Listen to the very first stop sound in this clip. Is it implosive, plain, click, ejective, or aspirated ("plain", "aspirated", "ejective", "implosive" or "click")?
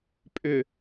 ejective